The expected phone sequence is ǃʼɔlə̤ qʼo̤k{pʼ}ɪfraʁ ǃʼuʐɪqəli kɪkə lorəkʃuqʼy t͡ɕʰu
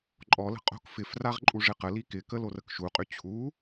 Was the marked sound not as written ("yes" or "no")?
yes